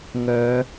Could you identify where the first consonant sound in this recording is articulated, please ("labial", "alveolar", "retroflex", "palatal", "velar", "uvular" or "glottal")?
velar